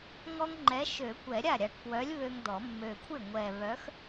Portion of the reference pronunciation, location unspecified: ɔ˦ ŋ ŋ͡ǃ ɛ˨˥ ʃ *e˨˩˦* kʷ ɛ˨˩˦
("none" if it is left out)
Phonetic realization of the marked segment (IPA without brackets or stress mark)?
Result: ø˨˩˦